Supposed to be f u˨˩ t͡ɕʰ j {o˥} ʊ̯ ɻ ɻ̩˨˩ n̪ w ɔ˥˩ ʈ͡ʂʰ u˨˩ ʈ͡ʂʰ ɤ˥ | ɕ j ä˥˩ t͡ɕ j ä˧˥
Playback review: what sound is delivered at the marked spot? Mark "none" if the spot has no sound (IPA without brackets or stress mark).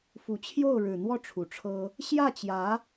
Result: o˥˩